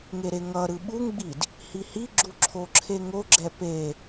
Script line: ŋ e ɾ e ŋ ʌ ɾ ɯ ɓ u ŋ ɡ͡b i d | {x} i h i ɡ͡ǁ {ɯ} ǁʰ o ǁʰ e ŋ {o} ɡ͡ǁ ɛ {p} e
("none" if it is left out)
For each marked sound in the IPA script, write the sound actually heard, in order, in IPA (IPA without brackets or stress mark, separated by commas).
h, u, o, p